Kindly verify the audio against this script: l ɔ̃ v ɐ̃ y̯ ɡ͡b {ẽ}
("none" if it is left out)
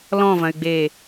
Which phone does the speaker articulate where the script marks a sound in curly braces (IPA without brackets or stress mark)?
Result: e